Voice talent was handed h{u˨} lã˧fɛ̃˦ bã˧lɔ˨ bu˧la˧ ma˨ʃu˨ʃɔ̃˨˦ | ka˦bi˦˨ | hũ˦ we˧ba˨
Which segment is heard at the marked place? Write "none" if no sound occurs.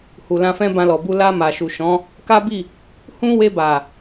u˨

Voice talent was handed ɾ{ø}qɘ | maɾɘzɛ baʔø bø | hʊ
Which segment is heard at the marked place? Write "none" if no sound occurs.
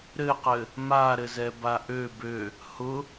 ɘ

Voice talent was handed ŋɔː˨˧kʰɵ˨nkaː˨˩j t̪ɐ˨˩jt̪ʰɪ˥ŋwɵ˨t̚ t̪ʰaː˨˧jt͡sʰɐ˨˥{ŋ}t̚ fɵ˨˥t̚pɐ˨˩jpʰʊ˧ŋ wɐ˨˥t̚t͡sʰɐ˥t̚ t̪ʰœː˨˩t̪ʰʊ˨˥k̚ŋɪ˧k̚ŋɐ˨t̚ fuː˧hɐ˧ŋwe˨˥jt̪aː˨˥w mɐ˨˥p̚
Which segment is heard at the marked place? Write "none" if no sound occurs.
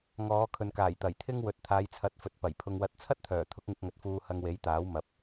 none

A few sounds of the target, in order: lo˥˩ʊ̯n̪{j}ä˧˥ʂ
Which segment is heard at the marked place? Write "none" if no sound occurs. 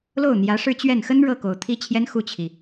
j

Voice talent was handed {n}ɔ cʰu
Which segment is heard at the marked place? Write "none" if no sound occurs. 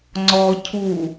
ŋ͡ǀ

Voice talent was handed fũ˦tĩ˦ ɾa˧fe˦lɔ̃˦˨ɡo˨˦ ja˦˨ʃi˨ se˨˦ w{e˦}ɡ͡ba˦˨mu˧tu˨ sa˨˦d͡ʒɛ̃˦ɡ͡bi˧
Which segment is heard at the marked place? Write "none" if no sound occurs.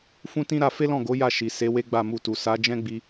e˦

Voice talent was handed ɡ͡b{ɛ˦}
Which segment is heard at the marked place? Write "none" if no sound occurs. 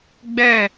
ɛ˦˨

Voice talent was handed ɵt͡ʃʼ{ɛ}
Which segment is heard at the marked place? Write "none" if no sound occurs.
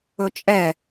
ɛ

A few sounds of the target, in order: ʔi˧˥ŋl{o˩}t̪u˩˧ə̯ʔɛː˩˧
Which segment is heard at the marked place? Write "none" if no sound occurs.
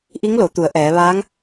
o˩˧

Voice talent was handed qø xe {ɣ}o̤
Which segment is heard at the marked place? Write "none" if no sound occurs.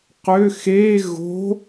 ɣ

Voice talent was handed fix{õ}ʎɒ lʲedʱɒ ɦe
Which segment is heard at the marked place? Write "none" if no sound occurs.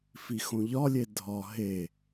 õ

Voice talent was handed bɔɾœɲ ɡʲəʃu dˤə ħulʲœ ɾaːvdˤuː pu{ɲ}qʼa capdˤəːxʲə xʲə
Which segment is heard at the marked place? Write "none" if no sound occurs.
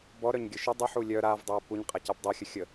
ɲ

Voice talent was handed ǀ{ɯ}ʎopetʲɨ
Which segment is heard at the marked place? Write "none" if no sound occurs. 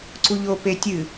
u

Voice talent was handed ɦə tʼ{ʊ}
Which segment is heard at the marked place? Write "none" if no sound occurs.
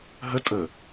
ə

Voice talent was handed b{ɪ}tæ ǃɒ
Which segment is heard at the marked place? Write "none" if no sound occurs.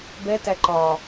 ɛ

